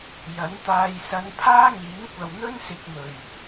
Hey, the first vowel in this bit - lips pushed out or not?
no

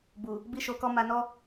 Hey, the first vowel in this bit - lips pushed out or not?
yes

